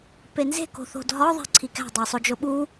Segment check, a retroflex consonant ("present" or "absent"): absent